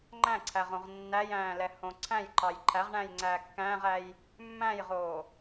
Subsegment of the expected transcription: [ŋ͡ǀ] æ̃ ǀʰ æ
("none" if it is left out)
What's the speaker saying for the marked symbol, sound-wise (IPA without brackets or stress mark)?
ŋ͡ǃ